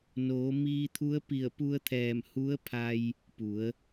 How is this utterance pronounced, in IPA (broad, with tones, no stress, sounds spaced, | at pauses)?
n oː˩˧ m iː˧ t̪ʰ u˧˥ ə̯ p i˧˩ ə̯ p u˧ ə̯ t̪ʰ ɛː˧˩ m h u˧˥ ə̯ pʰ a˧ j | p u˩˧ ə̯